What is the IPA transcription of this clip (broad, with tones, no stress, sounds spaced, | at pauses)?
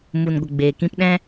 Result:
m u˨ n ɡʷ ə˨ ɡ͡b eː˨ k ĩ˧ p ɗ ɛ̃˦